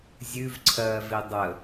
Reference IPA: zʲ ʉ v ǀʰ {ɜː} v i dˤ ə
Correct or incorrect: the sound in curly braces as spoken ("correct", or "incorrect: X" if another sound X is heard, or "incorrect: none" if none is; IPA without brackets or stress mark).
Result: correct